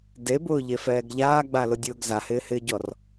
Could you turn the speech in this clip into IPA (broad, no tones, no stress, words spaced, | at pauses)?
debʊːʎefɛːɡ ʎaːɡ͡balʊdʲʊːɡ zahɪːhɪːɟɔr